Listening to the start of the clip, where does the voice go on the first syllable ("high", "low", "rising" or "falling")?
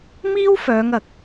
high